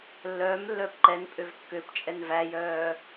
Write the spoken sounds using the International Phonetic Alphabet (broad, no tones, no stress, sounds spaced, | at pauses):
lː œː m lː œː p ǃ ɛ n pʼ ø v kː ø p t͡ʃʼ ɛ n v æ j œː